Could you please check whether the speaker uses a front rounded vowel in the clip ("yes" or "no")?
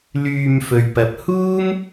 yes